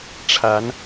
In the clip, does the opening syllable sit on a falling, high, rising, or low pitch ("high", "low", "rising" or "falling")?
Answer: rising